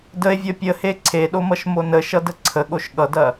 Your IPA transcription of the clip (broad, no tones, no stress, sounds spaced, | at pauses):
d ə e̯ vʲ ʌ pʲ ə h e ǀʰ e ɗ o m ʌ ʃ m o n ə ʃ ʌ d ə ǀʰ ə ɠ o ʃ ɠ ʌ d ɐ